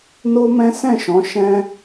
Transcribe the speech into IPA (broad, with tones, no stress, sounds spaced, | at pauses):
n o˦ m ɛ̃˦ s ɛ̃˦˨ ʃ ɔ̃˨˦ ʃ ɛ̃˦